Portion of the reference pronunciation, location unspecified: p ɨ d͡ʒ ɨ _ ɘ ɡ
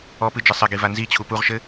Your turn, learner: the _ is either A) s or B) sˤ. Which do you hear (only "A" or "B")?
B